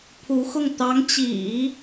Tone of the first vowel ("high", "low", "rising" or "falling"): rising